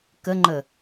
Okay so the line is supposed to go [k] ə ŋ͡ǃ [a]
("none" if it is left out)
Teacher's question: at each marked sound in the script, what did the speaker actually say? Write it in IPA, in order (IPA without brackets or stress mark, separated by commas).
k, ə